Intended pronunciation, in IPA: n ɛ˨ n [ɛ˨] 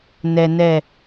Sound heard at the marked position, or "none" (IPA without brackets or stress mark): ɛ˨